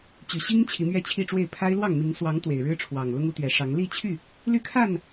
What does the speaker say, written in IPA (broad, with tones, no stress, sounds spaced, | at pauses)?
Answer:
t͡ɕ y˨˩ ɕ i˦ ŋ t͡ɕʰ i˨˦ m ɥ ɛ˥˨ t͡ɕʰ i˥˨ ʈ͡ʂ w e˥˨ ɪ̯ pʰ a˦ ɪ̯ l w ɑ˥˨ ŋ m i˨˦ ŋ s w ɑ˨˦ ŋ t̪ w e˨˩ ɪ̯ ɻ ɻ̩˦ ʈ͡ʂʰ w ɑ˨˩ ŋ l ʊ˦ ŋ u˨˦ t̪ ɥ ɛ˨˩ ʂ ɑ˨˦ ŋ l i˥˨ t͡ɕʰ y˥˨ | l y˥˨ kʰ a˥˨ n